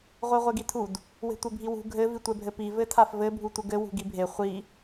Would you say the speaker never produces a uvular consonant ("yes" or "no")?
no